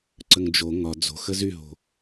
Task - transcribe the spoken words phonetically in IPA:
ǀ ə ŋ d͡ʒ o ŋ ɒ d͡z o̤ x ə z y ɦ o̤

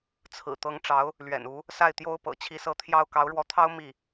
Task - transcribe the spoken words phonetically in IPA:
t͡sʰ ɹ̩˨˩ t̪ ɤ˧˥ ŋ ʈ͡ʂ ɑ˧˥ ʊ̯ | l ɥ ɛ̰˨˩ n u˧˥ | s a˥˩ ɪ̯ t̪ j o˥ ʊ̯ p ɤ̰˨˩ t͡ɕʰ i˧˥ s ɤ˧˥ t̪ʰ j ɑ˥˩ ʊ̯ k ɑ˧˥ ʊ̯ ɻ w ɔ˧˥ t̪ʰ ɑ˥ ʊ̯ m i˥˩

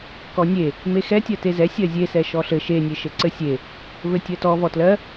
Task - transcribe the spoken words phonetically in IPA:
k ɔ nʲ e | m e x ɛ tʲ ɜ t e z ɛ sʲ ɜ zʲ e s ɛ ʃ ɔ ɬ ɘ ʃ e nʲ e ʃ ɘ ǀ ɘ sʲ e | v ɘ tʲ ɜ t ɔ v ɔ t l ɜ

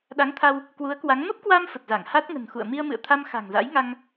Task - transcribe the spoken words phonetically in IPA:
ɗ a˨˦ ŋ t̪ʰ a˧ w | k w u˨˦ ə̯ k w a˨˦ ŋ m ə˦˥ p̚ k w a˧ m f ə˨˩ t̚ z a˧˩ ŋ h a˦˥ t̚ ŋ ə̤˨˩ n x ṵ˧˨ ə̯ m i˧ ə̯ m ɨ̰˧˨ ə̯ t̪ʰ a˧ m x a̤˨˩ ŋ z a̰˧˥ j ŋ a˧ ŋ

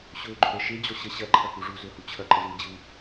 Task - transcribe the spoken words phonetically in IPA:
ɕ ɵː ɡ͡ǃ ɵ ɾ ə ʃ e d͡ʑ ɔ ɕ ə ɕ ɐ ǃʰ ɐ k u ʐ u z ɵ h u t͡ɕʰ ɐ ǃ ə z ɯː d͡ʑ ɯ

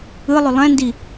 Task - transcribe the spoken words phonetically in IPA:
ɯ lˠ ʏ lˠ ɛ̃ n d i

